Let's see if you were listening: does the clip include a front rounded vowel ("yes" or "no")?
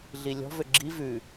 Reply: yes